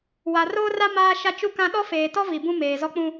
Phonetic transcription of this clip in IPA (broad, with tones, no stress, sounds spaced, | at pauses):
w a˨ r oː˦ r a˦ m aː˦ ʃ a˦ t͡ʃ u˦ k ã˦ ɗ ɔ˦ f eː˨ t ɔ˦ v i˨ b ũ˦ m eː˨ z ɔ˦ k͡p ũ˦